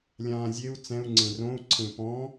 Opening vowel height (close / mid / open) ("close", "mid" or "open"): open